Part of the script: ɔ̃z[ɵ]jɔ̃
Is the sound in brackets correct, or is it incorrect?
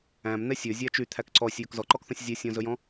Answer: correct